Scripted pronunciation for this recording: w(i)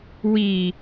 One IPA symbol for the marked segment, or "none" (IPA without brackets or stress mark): i